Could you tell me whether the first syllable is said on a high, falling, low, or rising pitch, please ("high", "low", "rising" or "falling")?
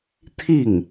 falling